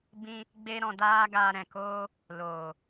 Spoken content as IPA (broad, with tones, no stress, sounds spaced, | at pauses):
b ĩ˦ | ɡ͡b e˦ ɾ ɔ̃˧ d aː˦ ɡ aː˧ ɾ ɛ̃˨ k oː˦ | l oː˨